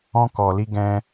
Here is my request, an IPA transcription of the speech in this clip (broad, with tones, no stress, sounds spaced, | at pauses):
ɔ̃˦ k ɔ˧ l i˦ ɡ ɛ̃˦